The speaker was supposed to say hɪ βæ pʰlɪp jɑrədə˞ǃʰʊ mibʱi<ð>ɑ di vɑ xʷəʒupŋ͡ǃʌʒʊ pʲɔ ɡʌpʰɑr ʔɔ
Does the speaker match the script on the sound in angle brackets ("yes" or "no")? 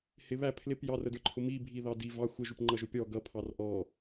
yes